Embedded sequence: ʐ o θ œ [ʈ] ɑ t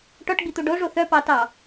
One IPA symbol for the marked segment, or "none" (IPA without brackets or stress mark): p